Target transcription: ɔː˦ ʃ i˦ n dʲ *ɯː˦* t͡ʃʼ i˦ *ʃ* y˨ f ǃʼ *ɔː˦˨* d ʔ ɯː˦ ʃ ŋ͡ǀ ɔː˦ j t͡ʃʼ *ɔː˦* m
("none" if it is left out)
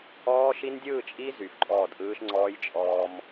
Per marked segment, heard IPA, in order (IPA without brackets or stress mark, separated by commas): ɯː˦˨, z, ɔː˦˨, ɔː˦